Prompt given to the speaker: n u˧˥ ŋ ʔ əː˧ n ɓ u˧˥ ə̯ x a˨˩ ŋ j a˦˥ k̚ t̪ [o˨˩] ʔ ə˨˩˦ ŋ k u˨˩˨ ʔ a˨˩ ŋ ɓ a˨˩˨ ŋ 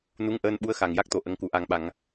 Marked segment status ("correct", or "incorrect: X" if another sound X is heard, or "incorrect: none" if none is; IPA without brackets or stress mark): correct